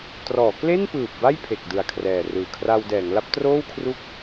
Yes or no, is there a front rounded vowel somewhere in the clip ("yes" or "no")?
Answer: no